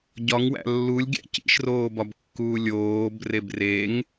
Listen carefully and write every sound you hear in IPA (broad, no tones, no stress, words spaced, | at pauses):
ɟɒŋwæ̰ lːulʲɡʲæ̰ cḭʃroːbɒb kːuːlʲoːb rebreŋ